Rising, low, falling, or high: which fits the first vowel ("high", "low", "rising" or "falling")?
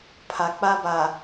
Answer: low